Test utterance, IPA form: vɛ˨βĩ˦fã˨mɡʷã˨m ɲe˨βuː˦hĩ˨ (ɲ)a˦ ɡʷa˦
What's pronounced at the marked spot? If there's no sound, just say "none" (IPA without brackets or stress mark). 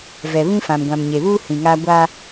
ŋ